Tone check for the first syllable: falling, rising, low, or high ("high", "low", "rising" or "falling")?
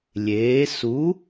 rising